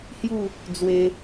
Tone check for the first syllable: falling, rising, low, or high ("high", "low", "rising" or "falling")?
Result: falling